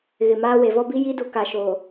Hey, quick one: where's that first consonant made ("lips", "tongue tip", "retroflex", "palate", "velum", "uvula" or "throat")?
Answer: velum